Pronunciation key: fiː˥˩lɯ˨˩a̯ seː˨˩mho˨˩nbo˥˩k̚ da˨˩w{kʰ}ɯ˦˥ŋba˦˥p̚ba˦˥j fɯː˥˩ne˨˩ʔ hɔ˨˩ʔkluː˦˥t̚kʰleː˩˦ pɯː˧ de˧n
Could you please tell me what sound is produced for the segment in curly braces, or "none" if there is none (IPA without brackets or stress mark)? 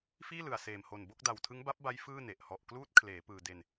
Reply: tʰ